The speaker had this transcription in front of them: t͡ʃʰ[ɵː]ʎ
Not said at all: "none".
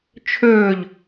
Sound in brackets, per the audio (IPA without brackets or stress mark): ɵː